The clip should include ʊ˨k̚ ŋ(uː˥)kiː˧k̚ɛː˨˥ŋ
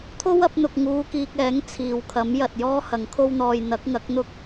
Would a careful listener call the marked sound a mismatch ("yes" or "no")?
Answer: yes